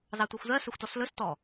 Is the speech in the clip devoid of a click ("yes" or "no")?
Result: yes